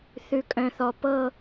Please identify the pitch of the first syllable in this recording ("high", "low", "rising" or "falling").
low